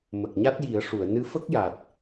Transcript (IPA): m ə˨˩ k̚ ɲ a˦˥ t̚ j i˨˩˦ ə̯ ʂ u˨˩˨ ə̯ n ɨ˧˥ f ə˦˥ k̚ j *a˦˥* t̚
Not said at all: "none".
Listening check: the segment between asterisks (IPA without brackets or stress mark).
a˨˩